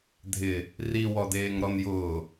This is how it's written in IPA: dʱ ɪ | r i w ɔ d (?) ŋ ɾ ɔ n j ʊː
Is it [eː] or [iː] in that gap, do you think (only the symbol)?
eː